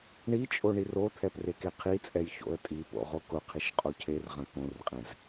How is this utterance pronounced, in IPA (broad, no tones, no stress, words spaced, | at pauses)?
ɳi t͡ʃʼoɳirot̪ʰɛp rekeqʰit͡sʼɛj ço̰ə̯tʼipo̰ ʁokʊqʰiʃ qʼocʰerʁɐ̃ kõrqʼɛ̃z